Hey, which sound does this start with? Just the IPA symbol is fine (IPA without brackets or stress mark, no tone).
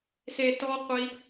s